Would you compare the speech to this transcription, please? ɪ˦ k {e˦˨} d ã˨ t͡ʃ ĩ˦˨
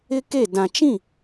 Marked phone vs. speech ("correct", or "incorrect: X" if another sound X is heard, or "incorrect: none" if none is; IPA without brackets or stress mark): correct